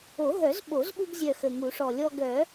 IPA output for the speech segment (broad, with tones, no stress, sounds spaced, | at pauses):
o˨˩˦ ɦ œ˨˩˦ z ɓ o˨˩˦ z ɓ u˧ ɡ zʲ œ˨˩ x ə˨˩ ŋ u˨˩˦ ʂ ɔ˨˩ lʲ ɔ˧ ɡ œ˨˩˦